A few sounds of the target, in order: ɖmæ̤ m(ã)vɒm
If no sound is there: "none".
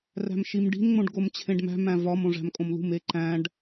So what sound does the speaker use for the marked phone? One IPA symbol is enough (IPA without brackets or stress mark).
æ̃